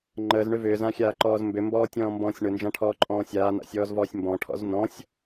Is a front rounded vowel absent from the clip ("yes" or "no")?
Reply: no